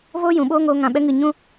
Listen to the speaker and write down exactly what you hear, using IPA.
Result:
v oː˦ j ũ˨ ɓ oː˦ ŋ oː˧ ŋ ã˨ ɓ ɛ˧ ŋ ɨ˨ ɲ ũ˦

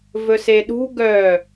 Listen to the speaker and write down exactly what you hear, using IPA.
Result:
v ɵ s e ɗ ṳ ɡ œ

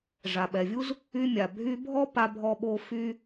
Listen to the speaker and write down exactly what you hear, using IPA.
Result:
ʐ a˩ ɓ ɛ˩ vʲ u˥ z | y˧ mʲ a˩ bʱ y˧ bʱ ɔ˥ p a˧ bʱ ɔ˧ ɓ o˧ f y˧

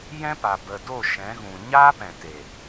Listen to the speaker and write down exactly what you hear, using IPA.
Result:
j ɛ̃˦ p a˨ b ə˨ d o˦˨ ʃ ɛ̃˨˦ ɣ ũ˨ ɲ aː˦ p ɛ̃˨ t e˨

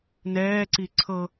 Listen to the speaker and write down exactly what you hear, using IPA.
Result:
n ɛː ǀ i ǀʰ ɤ

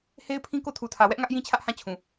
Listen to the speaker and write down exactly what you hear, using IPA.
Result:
h e˦ ɪ̯ pʰ ĩ˦ k o˦˨ tʰ u˨ tʰ ä˨ w ɛ˦ ʔ ŋ ä˦ ʔ j ĩ˦ t͡ɕʰ ä˦ ʔ h ã˦˨ t͡ɕʰ ũ˨

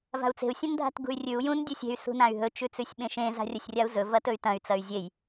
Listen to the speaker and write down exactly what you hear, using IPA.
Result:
v a̤ u̯ t͡s e̤ u̯ sʲ ɐ̃ n dʱ a̤ t ɡ ṳ y̯ rʲ ʉ u̯ j ũ n dʲ u sʲ e̤ y̯ s ṳ n ã y̯ ɦ ɵ t͡ʃ ʉ t͡s ʉ sʲ ɓ ẽ ʃ ẽ z a̤ rʲ ɐ sʲ rʲ a u̯ z ɵ v ɐ t ɵ y̯ t ɐ̃ y̯ t͡s ɐ y̯ zʲ e j

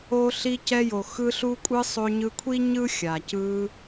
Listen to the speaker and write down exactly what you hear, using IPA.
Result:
o˧ ɬ i˧ c ɛ˧ j o˩ x ɯ˧ ɬ u˧ kʷʼ ɯ˧ sˤ o˧ ɲ ɯ˧ kʷʰ i˥ ɲ ɯ˥ xʲ a˩ c ɯ˧

